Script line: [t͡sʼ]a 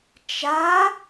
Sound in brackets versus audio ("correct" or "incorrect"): incorrect